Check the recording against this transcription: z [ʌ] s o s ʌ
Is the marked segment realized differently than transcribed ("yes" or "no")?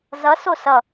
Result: no